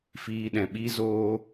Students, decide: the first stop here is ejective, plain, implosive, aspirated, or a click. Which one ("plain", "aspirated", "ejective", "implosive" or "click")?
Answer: implosive